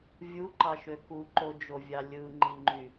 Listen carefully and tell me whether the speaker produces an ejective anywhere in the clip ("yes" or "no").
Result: no